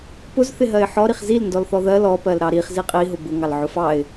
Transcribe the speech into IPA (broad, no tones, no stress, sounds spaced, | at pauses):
p ʊ z θ ɪ ɦ ɜ ɪ̯ ħ ɔ ɾ i χ z i l n d ɔ l θ ɔ ð ɜ l ɔ p ɜ l ɾ ɑ ɾ i χ z i qʼ i ɦ ʊ b ʊ ŋ ɑ l ʕ ʊ f ɑ ɪ̯